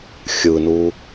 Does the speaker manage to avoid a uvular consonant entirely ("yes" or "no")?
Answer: yes